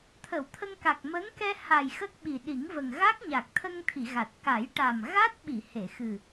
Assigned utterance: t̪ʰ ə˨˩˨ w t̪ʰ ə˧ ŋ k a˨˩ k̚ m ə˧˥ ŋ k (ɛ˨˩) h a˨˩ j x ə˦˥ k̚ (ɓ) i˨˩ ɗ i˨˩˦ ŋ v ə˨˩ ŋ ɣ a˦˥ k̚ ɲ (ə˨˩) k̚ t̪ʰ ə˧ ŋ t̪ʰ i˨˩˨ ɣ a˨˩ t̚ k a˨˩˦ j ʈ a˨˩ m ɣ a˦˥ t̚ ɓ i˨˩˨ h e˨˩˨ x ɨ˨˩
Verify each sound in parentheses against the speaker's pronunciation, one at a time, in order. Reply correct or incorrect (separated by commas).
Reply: incorrect, correct, incorrect